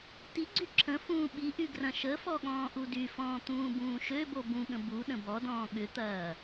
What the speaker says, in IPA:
tiɡ͡ǀy ǁʰə̃ fũːɓiʔy ɡrɐ̃ʃəfɔ ɠɔ̃ːʔudyfɔ̃ː t̪ũːbũːʃøbo bũɠə̃ bu ɗə̃bɔdɔ̃ː ɠʏt̪ɐː

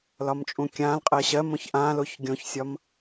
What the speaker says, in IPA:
lɒmt͡ʃʼũkʲãlqʼɜ ɕɜmõç ʔãloç ɡʲõçsʲɒm

